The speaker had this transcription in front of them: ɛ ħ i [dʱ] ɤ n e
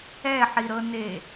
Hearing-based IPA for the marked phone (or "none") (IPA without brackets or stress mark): ɾ